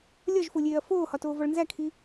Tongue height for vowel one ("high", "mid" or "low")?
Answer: low